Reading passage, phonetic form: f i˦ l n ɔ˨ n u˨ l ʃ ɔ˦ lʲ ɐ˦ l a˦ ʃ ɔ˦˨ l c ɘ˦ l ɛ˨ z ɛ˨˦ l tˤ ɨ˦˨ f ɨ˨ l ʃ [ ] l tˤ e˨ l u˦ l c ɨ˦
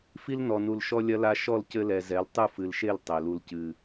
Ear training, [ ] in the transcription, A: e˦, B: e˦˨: B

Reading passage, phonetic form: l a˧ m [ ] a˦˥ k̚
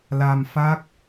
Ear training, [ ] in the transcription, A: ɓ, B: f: B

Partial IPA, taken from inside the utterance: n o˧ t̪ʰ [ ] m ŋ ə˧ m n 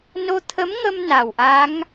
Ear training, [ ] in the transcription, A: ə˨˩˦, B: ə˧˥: B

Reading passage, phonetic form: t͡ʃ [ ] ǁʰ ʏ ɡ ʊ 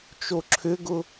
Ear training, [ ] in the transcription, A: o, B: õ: A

